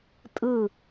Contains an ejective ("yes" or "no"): yes